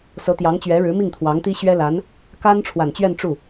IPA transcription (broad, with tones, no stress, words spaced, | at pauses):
sɤ˧˥t̪jɑ˧˥ŋt͡ɕɥɛ˧˥ɻɻ̩˧˥ mi˥˩ŋt̪ʰwɑ˧˥ŋt̪i˥ ɕɥɛ˥la˧˥n | ka˥n ʈ͡ʂʰwa˨˩nt͡ɕɥɛ˥˧n ʈ͡ʂu˥˩